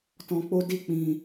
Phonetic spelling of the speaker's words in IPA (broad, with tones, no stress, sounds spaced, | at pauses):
t ɔ̃˧ k͡p o˦ d i˦˨ k͡p ĩ˧